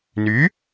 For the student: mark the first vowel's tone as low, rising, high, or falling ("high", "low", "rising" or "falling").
rising